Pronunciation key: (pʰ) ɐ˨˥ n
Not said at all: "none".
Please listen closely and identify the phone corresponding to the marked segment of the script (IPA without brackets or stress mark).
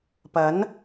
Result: p